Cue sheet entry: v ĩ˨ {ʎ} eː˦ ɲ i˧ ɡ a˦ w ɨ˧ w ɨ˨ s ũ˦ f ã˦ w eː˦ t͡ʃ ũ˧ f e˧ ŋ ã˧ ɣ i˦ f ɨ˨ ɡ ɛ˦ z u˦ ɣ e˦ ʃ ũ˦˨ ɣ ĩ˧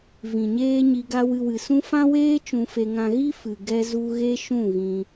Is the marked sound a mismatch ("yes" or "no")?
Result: yes